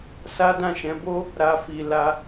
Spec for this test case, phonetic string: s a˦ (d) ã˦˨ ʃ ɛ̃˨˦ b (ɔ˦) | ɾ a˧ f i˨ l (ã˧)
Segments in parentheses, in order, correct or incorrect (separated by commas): correct, incorrect, incorrect